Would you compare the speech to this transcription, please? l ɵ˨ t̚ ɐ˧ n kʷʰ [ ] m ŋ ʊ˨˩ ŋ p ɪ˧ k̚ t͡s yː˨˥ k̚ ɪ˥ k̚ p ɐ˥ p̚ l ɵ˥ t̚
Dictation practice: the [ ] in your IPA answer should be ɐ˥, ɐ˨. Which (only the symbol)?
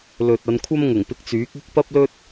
ɐ˥